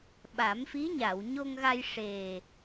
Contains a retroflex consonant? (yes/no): yes